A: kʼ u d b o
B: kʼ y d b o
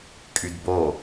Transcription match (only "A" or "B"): B